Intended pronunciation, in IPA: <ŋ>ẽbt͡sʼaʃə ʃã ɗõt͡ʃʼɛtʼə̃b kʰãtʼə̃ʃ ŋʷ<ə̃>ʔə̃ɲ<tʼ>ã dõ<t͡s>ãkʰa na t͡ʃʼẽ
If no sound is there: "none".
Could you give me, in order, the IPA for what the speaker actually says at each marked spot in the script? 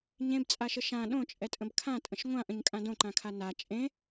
ɲ, ã, kʼ, ǃ

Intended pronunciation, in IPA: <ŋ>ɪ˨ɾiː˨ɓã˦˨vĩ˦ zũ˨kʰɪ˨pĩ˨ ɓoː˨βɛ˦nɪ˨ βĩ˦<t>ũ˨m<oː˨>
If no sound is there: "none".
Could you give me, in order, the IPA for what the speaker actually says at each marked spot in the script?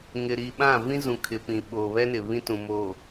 ŋ, t, oː˨

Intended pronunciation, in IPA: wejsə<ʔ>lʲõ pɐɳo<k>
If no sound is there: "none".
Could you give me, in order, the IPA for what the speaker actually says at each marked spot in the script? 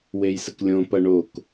k, k

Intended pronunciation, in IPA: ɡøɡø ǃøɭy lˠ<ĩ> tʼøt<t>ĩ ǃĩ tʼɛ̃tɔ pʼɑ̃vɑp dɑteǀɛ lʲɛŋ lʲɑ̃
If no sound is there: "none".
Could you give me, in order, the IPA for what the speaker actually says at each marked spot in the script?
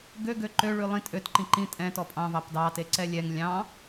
ĩ, ǃ

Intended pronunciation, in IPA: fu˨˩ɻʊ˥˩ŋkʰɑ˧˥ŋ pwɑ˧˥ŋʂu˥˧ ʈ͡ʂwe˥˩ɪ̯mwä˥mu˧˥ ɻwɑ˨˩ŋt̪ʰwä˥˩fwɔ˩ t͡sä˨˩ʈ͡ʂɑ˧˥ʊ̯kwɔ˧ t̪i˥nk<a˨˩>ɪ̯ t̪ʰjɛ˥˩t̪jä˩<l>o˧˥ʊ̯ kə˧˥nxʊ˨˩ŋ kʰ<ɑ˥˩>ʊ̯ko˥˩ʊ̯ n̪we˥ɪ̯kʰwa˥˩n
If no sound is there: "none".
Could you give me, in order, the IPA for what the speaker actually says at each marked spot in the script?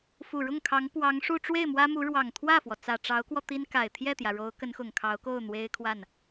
a˨˩, ɻ, ɑ˧˥

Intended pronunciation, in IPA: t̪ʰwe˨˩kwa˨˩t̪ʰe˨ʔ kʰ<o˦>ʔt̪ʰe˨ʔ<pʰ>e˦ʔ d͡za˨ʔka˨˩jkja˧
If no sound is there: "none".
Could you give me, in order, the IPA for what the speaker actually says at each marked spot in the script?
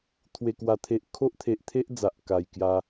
o˦, t̪ʰ

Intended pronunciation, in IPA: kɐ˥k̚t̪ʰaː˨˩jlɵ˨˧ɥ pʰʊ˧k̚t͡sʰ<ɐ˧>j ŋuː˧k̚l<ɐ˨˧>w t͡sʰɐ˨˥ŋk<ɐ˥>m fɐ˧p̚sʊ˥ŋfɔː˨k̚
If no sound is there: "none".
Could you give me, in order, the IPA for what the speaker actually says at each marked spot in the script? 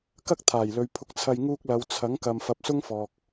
ɐ˧, ɐ˨˧, ɐ˨

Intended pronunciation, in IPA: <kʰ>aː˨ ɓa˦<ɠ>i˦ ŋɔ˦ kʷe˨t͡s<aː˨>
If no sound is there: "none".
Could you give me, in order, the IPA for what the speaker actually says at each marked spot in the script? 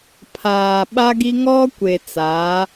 pʰ, ɡ, aː˨˦

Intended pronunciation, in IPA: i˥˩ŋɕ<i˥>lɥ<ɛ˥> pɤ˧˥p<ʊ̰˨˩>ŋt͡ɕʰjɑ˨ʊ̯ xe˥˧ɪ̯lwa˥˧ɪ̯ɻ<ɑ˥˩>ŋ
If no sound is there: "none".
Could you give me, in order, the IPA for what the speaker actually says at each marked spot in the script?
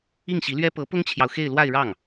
i˧˥, ɛ˥, ʊ˥, ɑ˥˩

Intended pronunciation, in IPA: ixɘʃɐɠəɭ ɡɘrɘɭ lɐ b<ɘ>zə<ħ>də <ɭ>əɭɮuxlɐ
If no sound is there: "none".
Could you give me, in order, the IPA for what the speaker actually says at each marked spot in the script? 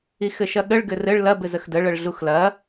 ɘ, x, ɭ

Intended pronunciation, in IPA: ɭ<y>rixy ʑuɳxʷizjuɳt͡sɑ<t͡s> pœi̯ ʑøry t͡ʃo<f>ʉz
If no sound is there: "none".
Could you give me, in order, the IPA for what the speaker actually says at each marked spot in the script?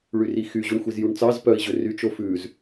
y, z, f

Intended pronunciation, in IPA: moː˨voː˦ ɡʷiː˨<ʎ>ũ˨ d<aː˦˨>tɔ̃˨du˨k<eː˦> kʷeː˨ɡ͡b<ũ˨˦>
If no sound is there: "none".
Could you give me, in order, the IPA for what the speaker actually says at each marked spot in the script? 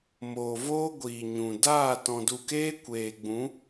ɲ, aː˦˨, eː˦, ũ˨˦

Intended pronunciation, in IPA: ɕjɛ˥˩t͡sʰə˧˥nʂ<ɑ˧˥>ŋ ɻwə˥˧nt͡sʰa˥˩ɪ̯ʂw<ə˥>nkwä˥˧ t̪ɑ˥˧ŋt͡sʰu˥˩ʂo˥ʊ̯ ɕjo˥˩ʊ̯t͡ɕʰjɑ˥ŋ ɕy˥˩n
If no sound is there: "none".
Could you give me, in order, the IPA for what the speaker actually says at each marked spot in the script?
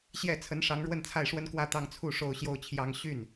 ɑ˧˥, ə˥

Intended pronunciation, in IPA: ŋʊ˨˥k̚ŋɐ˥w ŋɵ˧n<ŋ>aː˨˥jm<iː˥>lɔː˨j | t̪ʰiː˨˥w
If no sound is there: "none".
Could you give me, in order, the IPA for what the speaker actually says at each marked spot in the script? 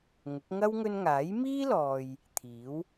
ŋ, iː˥

